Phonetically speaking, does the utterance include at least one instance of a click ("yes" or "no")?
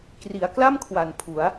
no